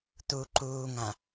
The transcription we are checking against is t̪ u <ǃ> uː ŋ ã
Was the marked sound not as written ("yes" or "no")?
no